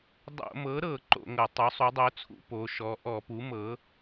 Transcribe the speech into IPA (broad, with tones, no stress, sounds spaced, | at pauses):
dˤ o̰˧˩˧ m ɤ˩˥ ɾ ɤ˧˩˧ ǃ o̰˧˩˧ ŋ ɤ˧˩˧ tˤ o˩˥ sˤ u˩˥ dˤ o˩˥ t͡sʰ ṵ˧˩˧ p o˩˥ ʃ ɔ˩˥ ʔ ɔ˧˩˧ p u˩˥ m ɤ˩˥